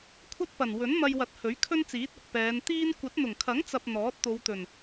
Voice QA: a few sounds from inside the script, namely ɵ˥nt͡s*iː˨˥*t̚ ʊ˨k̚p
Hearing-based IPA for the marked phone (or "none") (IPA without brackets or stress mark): iː˨˥